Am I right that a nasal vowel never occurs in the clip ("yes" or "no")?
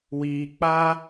yes